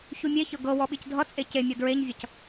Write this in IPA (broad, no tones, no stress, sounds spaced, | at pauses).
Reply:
ç u mʲ e ç ɤ ɡ ɤ w ɔ ɓ i c dʱ ʌ t͡sʼ e c e mʲ ʌ d ɹ e ɲ vʲ ʌ c